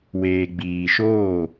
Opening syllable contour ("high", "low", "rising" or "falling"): low